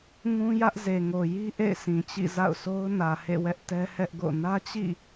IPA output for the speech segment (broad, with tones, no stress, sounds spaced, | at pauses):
ŋ ũ˦ j ä˦ ʔ z e˨ ŋ o˨ j i˦ ʔ ḛ˦˨ ɪ̯ s ĩ˨ t͡ɕ ḭ˦˨ z a̰˦˨ ʊ̯ sʰ o˦ ʊ̯ n ä˨ h ḛ˦˨ w ɛ˦ ʔ t ɛ˦ h ɛ˦ ʔ ɡ o̰˦˨ n ä˦ t͡ɕ ḭ˦˨